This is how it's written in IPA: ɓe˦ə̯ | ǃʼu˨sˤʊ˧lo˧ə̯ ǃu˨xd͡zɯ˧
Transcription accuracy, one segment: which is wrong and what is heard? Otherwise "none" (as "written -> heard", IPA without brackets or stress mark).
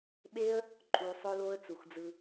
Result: ǃ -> t͡s